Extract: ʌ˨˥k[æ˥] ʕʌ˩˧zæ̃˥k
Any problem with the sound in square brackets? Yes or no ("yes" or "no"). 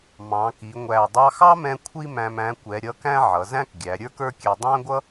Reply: yes